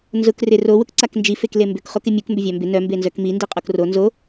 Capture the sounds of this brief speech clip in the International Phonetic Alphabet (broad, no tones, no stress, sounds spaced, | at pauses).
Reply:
n z ʊ k r ɪ r o w ʊ k ǀ a k n d͡ʒ i f e k l e m b ʏ k χ o k ɪ mʲ u k m b ʏ vʲ a m b ɪ n œ m b e n z œ k m i n d i qʼ o k r o n z o